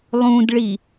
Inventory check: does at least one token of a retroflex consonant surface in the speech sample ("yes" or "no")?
yes